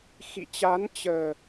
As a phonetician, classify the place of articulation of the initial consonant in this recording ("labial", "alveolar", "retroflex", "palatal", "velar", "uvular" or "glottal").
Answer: velar